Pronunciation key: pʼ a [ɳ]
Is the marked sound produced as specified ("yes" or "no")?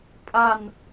no